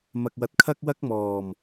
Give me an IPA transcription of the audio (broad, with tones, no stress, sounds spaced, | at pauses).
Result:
m ɐ˨ k̚ w ɐ˨˥ t̚ kʰ ɐ˥ k̚ w ɐ˥ k̚ m ɔː˨˩ m